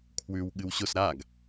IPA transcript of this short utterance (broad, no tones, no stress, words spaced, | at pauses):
kʰwʉw ɠɨwɕʊs ɾaɡ